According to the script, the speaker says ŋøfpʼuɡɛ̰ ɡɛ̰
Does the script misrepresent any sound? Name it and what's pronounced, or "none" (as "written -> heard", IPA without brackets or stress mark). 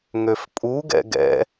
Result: none